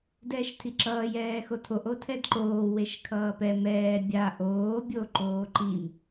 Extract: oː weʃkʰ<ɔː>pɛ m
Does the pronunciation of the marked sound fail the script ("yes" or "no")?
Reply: yes